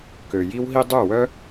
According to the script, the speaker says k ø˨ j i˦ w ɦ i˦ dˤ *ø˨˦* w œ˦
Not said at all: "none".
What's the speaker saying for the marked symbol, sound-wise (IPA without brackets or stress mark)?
ø˦˨